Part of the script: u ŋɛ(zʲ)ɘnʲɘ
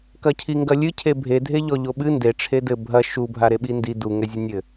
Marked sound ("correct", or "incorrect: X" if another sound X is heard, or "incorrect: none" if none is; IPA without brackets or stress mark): correct